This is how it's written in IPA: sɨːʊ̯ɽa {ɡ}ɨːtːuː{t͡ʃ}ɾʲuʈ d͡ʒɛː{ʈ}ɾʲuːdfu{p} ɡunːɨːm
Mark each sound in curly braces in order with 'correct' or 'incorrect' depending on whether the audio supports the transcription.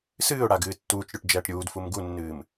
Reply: correct, correct, correct, incorrect: m

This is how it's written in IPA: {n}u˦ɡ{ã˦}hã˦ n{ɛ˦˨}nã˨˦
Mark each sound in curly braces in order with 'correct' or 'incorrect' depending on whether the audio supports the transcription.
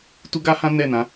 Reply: incorrect: t, incorrect: a˦, correct

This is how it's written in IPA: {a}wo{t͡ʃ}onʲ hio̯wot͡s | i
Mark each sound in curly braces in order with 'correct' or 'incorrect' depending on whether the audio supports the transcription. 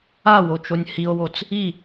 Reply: correct, correct

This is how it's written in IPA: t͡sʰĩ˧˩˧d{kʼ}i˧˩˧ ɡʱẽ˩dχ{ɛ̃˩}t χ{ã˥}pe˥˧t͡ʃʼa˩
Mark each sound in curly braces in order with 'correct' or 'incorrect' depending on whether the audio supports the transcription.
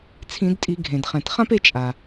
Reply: incorrect: tʼ, correct, correct

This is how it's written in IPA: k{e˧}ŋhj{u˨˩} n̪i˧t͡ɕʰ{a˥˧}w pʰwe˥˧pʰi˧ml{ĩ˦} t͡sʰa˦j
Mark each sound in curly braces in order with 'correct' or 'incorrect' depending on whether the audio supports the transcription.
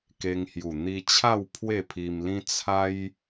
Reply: correct, correct, correct, correct

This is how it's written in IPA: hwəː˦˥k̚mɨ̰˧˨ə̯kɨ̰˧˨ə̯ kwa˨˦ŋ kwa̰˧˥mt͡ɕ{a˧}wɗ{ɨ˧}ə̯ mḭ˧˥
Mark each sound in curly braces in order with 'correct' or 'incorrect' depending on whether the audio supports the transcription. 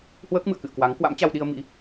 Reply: correct, incorrect: i˧

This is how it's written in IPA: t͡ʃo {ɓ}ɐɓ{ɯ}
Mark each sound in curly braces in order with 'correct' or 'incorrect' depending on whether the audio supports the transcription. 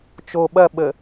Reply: correct, incorrect: ə

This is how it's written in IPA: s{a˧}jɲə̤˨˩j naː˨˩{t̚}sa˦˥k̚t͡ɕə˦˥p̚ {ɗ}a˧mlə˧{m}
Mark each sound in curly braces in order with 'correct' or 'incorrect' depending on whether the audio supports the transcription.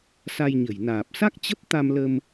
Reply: correct, incorrect: p̚, incorrect: t̪, correct

